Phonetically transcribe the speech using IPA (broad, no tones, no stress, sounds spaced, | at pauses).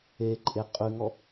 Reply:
e ǃʼ e qʼ ʉ ŋ ɔ